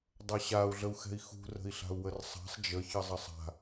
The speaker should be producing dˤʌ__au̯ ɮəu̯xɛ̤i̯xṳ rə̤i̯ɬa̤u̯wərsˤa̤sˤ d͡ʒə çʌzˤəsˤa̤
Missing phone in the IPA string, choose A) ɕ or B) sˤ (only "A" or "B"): A